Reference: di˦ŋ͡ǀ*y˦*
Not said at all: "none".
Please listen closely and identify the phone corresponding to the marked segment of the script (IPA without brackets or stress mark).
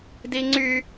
y˦